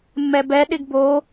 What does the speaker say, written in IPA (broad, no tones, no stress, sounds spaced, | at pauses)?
mː ɛ b ɛ ɗ ɪ ɡ b o